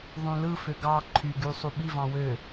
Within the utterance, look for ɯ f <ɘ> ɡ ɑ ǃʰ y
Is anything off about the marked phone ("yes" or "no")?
yes